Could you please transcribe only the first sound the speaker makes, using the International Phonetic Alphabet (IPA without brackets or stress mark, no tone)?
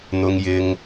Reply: n̪